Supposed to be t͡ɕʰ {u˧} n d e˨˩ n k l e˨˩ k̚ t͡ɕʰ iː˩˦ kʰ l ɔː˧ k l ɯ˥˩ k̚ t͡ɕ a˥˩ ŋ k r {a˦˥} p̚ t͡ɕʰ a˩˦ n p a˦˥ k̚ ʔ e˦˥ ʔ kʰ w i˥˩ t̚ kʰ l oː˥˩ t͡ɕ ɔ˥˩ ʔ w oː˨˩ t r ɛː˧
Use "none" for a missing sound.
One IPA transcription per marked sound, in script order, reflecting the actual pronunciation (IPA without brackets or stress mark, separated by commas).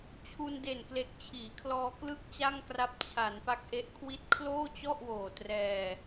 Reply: u˧, a˦˥